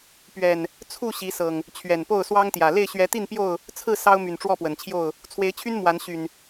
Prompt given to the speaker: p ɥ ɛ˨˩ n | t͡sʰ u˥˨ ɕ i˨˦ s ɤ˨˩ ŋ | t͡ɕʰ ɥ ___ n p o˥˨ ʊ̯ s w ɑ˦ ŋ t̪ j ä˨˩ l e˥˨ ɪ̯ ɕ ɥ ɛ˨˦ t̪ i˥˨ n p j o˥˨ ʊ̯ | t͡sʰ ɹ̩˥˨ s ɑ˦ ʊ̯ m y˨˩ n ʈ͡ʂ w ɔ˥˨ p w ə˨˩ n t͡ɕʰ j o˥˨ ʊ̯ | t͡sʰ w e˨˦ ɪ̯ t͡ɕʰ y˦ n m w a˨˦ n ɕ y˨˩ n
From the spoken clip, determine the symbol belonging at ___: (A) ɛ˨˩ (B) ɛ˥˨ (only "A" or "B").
A